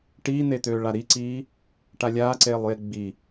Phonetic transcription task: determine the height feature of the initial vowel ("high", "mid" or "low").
high